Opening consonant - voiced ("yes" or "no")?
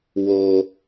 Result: yes